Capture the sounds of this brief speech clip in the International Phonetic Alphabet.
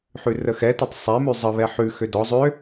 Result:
ħʉrəxɛtətˤ sˤɛmʉ zˤəβɛ ħʉxø dɔ zˤø

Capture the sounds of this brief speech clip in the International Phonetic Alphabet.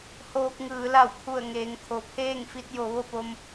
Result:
hoː˧k̚ŋɯː˩˧ la˧˩wkʰu˧˩ə̯ ŋeː˩˧ŋkʰo˩pʰeː˥˨ŋfi˧t̚ jo˩˧ʋo˥˨po˧m

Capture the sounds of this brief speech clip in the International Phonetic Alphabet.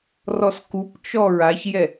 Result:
rɔskupt͡ʃɔ ɹaçjɛ

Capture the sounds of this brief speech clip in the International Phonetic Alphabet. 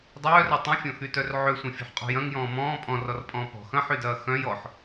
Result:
dˤœːrɐ tˤœ̃fʲɔ̃xytœr ʕøsʷɐ̃fʲɔ̤ħqʼɔ̤ jɐ̃ŋjɔ̃ː mɔ̃ː pʼɔ̃rɔrpʼɔ̃ː pɔ̤ xɐ̃ħydɐː xœ̃j ɔħ

